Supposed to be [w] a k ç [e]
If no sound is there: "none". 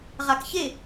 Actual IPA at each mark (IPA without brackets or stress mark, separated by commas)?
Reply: ʁ, e